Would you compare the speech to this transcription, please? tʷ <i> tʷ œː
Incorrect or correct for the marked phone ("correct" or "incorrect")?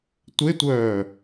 incorrect